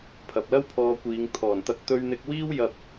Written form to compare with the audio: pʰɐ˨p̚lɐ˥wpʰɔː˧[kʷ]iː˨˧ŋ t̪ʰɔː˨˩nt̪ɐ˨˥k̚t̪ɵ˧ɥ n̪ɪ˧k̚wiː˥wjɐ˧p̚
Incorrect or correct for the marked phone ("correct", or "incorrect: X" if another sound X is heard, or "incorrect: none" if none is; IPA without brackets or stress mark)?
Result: correct